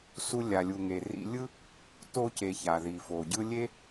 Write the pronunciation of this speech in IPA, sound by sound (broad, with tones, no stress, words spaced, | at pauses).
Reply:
su˧lʲa˩lʲu˩ ŋe˩ rḭ˧lʲɯ˥ | to˧ce˩ ça˩ði˩fo˩ɟɯ˥ lʲe˥